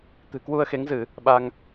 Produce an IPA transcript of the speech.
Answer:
t̪ɨ̤˨˩kwu˧ə̯xe˨˦ŋzɨ˧˩˨ | ɓa˧ŋ

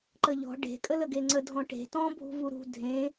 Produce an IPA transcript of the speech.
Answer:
ǃəʎɔ̤ ɖe̤ kʼələɡeŋ͡ǀə dʱɔ̃ʈe̤ tɔ̃ bʱṳvuɾṳ dʱẽ

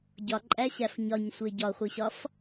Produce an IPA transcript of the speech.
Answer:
ɟɒǃʼæɕæf ɲɒɲsʷe ɟɒχʷiɕɒf

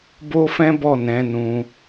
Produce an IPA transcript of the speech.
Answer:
bo˦fɛ̃˦ bɔ˦˨nɛ̃˨˦ nũ˧

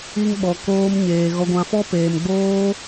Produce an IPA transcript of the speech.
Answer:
i˦ŋɓɔ˧ koː˦mɲeː˧ ɣɔ˧ɡʷã˧fɔ˦ peː˧mɡ͡boː˦

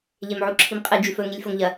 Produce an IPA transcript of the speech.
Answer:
ʎemʕuǁʰimqʼɨ d͡ʒʉfɵ ŋilʲfoŋʎɐ

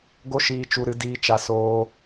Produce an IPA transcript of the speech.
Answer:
ɡo˦ʃiː˧t͡ʃu˧ɾɨ˧ diː˧t͡ʃa˧ soː˧

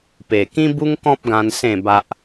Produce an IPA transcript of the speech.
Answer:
pe˨˩kĩ˦bu˦ŋkɔ̃˦p̚ ɡã˧n sẽ˥˧ ba˦ʔ

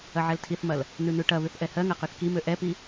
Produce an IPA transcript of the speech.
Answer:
ɐʕɛltʰiθmɐl | nʉnʉʈɐβʉθ ʔɛhɜŋɐ qøθkimø ʔɛpi

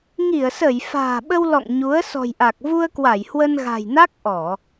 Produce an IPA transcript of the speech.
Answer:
ŋi˧˩ə̯sə˧˩j fa̤ː˨˩ɓə˧wlɔ̰˧˨ŋ ɲu˨˦ə̯ sɔ̤˨˩jʔa˨˩k̚ vu˧ə̯kwa˧˩j hwə˧nɣa̤˨˩jna˦˥k̚ ʔɔ˧˩˨

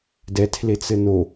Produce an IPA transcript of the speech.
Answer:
dɛ tʰlet͡sɘno

